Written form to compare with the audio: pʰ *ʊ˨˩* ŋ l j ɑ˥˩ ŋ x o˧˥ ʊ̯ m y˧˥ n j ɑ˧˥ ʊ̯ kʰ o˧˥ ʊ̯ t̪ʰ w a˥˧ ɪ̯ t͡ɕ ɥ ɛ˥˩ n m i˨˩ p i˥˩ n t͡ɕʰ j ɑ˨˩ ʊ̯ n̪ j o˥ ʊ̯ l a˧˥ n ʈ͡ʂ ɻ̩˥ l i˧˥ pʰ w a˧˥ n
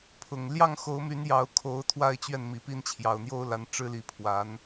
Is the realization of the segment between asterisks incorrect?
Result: no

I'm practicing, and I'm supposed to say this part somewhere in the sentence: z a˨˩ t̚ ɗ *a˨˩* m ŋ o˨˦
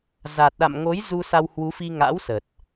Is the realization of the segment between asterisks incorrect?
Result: yes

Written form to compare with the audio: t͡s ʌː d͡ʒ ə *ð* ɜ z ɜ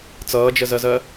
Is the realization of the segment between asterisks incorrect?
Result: yes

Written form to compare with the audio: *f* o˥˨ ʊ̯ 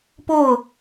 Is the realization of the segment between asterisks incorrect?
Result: yes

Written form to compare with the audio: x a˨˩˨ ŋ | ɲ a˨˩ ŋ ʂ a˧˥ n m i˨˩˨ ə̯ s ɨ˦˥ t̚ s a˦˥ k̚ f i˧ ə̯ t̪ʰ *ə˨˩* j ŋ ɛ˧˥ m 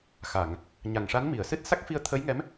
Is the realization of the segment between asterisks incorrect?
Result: yes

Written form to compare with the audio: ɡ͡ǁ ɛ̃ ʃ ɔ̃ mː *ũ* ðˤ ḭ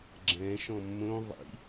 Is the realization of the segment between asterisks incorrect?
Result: yes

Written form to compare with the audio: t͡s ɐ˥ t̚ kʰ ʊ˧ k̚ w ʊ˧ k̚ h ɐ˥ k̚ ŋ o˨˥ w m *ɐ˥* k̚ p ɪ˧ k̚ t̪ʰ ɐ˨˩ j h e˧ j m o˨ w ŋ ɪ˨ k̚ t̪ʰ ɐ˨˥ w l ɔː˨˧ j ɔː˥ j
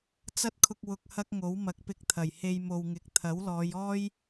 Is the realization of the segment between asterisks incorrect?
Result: yes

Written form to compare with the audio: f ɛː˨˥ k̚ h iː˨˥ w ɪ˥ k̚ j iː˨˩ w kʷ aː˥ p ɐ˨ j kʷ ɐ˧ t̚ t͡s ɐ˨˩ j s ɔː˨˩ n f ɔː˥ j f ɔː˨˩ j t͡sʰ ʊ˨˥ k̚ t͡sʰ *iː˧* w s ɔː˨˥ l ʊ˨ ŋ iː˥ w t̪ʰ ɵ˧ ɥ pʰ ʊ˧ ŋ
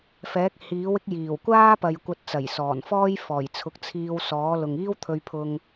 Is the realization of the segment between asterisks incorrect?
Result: no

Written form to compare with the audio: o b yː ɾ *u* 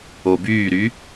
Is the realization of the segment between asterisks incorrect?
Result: yes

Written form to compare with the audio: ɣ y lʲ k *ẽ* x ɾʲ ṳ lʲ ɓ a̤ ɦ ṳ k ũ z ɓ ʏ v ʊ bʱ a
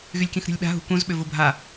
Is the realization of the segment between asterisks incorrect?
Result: yes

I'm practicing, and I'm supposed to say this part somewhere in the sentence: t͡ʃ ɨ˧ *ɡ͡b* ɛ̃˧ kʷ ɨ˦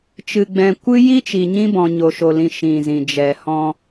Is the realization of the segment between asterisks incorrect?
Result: no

